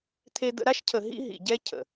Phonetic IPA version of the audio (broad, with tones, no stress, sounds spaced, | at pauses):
t̪ʰ e˧ d̪ ə̰˧ ɾ a˦ ʃ cʰ ə˨ ɦ ḭ˦ ɦ ḭ˨ ɟ ɛ˦ cʰ ə̰˨